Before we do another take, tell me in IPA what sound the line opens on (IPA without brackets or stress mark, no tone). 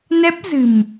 n